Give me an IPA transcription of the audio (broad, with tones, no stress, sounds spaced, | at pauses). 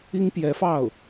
i˥ ŋ p j ɛ˧˥ f ɑ˥˩ ʊ̯